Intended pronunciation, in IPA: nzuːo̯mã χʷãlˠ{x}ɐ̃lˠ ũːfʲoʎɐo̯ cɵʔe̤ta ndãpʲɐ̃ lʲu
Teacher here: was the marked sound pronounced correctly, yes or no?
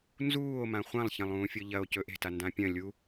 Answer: no